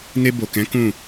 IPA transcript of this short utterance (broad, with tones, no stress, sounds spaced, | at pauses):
n e˧ b o˨ k ɛ̃˨˦ k ũ˦˨